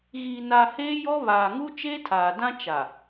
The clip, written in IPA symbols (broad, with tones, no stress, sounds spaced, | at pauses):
ɣ iː˨ n a˨ h eː˦ j ɔ˦ β aː˨ ŋ u˦ t͡ʃ eː˦ tʰ aː˨ d ã˦ t͡ʃ a˨